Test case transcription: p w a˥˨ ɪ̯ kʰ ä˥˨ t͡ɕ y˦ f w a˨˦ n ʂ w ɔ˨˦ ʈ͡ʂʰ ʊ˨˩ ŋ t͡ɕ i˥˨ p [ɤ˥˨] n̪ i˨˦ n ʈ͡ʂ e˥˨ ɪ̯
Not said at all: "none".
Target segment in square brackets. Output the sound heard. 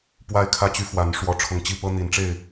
ɤ˦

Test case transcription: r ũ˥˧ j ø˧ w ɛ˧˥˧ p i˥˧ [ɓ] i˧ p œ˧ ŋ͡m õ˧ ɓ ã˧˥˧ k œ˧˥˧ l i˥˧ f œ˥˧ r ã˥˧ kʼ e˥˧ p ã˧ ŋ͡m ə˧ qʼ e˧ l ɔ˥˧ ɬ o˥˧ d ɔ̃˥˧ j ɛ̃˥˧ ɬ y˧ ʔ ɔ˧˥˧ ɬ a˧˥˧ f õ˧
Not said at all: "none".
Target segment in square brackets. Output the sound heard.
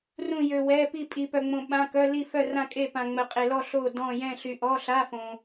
pʼ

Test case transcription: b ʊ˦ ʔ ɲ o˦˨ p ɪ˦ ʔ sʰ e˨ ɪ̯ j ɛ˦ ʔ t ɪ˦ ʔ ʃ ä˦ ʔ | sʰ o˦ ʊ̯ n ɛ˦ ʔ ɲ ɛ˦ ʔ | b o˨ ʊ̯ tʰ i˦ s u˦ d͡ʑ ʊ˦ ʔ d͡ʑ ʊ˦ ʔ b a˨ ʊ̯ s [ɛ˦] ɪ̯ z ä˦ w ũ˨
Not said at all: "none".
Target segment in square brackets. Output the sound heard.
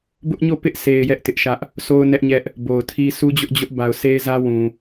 e˦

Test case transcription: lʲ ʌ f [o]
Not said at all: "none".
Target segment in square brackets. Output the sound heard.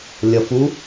u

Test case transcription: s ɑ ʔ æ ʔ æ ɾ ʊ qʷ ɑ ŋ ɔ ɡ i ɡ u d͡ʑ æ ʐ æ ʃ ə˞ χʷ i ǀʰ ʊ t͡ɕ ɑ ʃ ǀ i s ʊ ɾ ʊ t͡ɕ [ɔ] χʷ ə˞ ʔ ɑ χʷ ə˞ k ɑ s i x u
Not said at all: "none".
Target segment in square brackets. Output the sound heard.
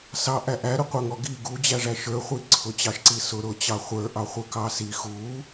ɑ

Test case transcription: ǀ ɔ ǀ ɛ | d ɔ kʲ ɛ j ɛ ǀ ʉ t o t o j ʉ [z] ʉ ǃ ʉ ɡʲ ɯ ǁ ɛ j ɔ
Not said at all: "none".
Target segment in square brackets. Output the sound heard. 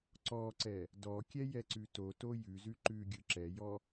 z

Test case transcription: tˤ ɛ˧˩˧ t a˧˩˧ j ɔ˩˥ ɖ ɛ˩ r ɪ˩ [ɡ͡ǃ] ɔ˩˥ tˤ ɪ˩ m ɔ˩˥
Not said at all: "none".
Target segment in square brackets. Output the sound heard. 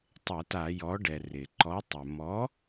ǃ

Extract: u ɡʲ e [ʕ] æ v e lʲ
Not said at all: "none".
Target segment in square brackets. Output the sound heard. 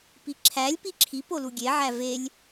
ʕ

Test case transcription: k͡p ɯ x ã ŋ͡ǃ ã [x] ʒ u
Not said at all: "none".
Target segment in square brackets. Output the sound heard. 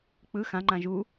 none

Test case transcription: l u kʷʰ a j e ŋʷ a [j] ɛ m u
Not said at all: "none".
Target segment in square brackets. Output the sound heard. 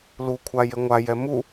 j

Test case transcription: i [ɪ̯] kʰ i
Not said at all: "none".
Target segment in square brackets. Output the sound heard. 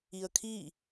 ə̯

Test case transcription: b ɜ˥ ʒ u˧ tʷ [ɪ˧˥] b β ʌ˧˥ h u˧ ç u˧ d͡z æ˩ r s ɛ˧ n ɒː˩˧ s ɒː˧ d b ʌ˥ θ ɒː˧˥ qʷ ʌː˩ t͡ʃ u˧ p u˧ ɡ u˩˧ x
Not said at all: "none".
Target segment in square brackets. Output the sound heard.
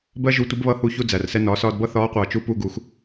ɪ˧˥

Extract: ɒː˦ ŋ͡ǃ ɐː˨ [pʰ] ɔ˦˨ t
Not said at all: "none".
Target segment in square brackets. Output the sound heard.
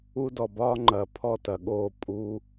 pʰ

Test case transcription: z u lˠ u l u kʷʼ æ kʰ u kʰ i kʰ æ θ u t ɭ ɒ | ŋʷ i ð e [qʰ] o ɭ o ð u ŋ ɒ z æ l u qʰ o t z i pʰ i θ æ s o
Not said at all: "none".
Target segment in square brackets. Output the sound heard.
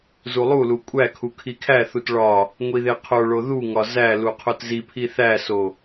qʰ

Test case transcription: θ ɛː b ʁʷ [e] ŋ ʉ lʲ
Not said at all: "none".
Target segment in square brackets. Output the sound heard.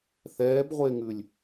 e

